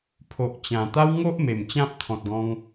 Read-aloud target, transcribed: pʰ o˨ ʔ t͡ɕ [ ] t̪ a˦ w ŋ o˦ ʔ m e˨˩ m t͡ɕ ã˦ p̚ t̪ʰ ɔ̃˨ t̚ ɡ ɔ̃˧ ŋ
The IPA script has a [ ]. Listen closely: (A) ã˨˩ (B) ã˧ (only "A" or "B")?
A